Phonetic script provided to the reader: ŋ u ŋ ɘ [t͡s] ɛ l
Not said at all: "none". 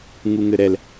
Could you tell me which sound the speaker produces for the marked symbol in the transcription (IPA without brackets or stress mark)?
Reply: ɾ